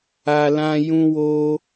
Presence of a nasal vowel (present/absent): present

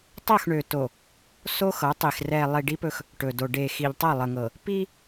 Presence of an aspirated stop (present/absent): absent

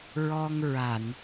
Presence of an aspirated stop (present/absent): absent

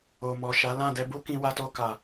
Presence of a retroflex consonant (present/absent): absent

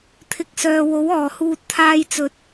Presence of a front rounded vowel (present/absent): present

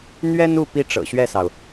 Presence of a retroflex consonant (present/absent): present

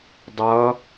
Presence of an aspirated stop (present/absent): absent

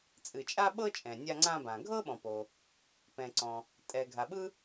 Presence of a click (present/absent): present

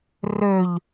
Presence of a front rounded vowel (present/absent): present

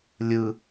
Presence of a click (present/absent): absent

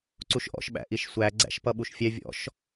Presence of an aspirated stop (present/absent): absent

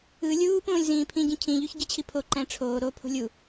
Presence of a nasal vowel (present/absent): present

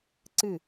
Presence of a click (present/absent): present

